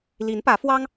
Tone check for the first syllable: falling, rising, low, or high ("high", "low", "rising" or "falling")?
rising